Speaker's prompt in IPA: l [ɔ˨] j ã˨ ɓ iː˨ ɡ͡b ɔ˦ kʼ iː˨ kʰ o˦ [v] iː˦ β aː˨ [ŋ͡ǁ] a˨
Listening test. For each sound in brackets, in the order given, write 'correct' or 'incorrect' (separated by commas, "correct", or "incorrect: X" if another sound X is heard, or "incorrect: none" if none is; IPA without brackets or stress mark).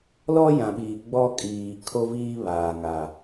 incorrect: ɔ˦, correct, incorrect: ŋ